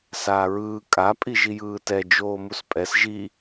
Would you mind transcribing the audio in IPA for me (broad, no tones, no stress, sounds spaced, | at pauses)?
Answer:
s aː ɹ ɯː kʼ a pʼ i ʒ i j ɯː t ɛ d͡ʒ oː m u s pʼ ɛ s ʒ i